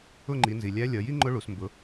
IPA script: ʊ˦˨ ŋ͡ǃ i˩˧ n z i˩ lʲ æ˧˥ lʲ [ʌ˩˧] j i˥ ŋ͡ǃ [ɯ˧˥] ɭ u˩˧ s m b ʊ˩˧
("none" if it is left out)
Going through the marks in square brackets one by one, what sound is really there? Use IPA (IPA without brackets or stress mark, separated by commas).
ʌ˩˧, ʊ˧˥